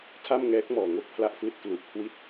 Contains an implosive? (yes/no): no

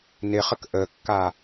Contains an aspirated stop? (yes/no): no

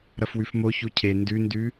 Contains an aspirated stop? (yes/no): yes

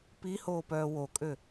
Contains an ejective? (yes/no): yes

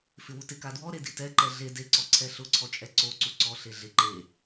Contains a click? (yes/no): yes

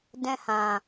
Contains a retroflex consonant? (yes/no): no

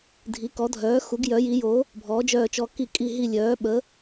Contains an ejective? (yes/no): yes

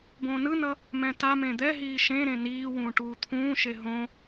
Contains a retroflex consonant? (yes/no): yes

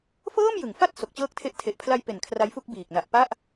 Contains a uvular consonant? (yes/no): no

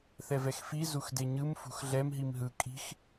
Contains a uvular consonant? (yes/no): no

